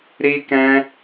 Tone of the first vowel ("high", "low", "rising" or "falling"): high